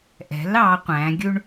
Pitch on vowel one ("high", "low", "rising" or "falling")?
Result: rising